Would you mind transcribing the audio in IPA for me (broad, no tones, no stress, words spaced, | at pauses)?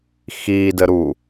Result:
xiːdəɾu